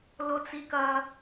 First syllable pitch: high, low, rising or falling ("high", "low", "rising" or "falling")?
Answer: low